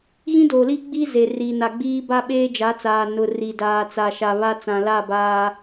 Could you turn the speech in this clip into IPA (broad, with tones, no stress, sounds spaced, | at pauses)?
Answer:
ɣ ĩ˦ d oː˨ l iː˦ ɡ͡b iː˦ z e˨ r i˨ n a˨ ɡ͡b iː˦ b a˦ ɓ eː˦ d͡ʒ a˨˦ t͡s aː˨ n ʊ˨ r i˨ d aː˨ t͡s a˨ ʃ a˨ β a˦ t͡s ã˨ l a˦˨ b aː˦